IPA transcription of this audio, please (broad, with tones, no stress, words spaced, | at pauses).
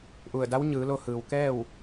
ʔu˧˩ə̯da˧˥wɲɯː˩˧lo˧ hɯː˩wkɛː˥˨w